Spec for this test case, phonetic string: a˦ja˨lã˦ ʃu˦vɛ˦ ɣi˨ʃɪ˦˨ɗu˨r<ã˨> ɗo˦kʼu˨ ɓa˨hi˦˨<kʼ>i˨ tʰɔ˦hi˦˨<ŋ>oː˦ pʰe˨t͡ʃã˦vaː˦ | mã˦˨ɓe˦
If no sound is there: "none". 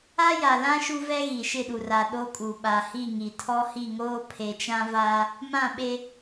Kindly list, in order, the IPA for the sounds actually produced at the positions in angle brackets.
a˨, ŋ, ŋ

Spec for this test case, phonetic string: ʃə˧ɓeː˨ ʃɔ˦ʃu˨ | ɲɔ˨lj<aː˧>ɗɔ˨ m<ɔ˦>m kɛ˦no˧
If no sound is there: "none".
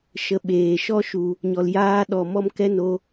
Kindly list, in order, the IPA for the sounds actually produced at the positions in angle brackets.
aː˧, ɔ˦

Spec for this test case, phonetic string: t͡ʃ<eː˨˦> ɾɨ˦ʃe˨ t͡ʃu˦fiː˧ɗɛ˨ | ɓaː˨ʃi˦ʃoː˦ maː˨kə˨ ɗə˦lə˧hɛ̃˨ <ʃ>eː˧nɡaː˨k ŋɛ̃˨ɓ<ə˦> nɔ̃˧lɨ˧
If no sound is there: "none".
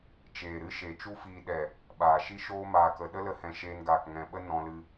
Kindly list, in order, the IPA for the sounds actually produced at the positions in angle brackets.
eː˨, ʃ, ə˦

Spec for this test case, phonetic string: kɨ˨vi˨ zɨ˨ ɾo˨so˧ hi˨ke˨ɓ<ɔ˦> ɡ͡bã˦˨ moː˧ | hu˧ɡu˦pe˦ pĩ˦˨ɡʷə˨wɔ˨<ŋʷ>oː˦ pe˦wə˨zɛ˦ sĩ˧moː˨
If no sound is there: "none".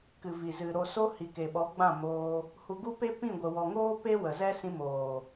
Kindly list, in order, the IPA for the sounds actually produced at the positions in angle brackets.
ɔ˨˦, ŋ

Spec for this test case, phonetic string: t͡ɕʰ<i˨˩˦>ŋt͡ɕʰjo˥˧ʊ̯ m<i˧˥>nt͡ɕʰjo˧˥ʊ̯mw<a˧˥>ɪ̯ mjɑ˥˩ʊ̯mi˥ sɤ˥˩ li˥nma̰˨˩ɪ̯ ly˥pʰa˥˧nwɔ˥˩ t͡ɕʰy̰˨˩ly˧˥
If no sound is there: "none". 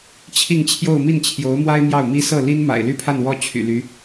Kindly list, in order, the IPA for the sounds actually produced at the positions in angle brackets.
i˥˧, i˥˩, a˥

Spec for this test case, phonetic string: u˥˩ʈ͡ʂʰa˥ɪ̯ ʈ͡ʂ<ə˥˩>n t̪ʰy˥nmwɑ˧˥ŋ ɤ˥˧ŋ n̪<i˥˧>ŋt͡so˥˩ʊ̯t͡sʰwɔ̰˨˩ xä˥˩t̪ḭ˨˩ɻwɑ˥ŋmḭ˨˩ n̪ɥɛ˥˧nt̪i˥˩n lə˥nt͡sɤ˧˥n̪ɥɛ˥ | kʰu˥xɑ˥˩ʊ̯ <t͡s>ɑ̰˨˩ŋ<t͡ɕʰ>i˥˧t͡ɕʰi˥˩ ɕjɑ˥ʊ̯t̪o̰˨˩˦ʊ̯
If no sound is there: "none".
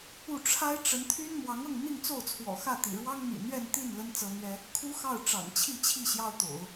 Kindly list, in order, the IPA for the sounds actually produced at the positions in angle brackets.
ə˧˥, i˥˧, ʈ͡ʂ, t͡ɕʰ

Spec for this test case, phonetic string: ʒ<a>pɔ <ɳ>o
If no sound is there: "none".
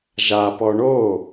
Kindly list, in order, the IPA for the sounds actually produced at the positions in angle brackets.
a, ɳ

